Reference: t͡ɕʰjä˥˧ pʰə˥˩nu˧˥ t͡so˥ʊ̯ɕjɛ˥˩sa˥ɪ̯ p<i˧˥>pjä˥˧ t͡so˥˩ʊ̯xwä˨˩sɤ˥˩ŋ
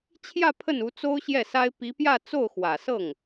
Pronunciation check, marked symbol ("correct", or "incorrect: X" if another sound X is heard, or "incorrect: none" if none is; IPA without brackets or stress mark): correct